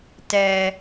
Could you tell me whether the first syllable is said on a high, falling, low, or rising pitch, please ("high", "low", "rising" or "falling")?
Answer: low